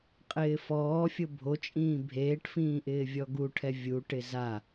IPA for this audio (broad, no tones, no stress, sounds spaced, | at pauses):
qʼ ɪː f ɔː fʲ ʊ bʱ o t͡ʃʼ ĩː bʱ eː ʈ f ĩː ʔ ɪː vʲ ɔ ɡ u ʈʰ ɛ vʲ u ʈ ɪ z a